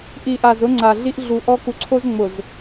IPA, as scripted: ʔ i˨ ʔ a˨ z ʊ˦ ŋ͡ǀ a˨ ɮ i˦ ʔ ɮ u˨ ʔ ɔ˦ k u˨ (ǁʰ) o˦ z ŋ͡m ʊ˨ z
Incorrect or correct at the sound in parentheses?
incorrect: ǀʰ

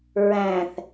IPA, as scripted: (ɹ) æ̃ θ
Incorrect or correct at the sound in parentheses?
correct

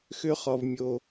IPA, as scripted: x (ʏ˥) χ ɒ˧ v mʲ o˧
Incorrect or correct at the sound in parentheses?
correct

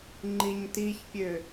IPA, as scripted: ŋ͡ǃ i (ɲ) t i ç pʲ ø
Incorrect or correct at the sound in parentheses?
correct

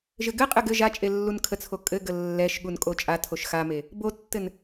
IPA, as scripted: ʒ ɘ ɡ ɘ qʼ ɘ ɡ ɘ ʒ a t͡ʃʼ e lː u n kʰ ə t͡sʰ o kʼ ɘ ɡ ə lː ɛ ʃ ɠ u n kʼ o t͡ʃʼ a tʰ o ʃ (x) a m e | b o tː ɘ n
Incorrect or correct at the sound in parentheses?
correct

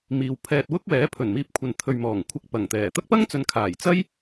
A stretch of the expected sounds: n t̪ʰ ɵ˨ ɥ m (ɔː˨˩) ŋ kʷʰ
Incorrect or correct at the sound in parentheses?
correct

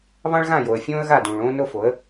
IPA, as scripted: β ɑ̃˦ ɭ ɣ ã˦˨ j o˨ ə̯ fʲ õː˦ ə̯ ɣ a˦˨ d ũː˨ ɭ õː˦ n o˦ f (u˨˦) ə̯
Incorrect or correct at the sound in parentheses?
incorrect: o˨˦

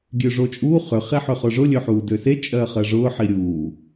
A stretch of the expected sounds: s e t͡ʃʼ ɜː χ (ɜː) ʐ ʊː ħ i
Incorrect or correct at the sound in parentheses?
incorrect: ɜ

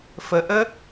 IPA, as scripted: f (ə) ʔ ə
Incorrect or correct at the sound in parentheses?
correct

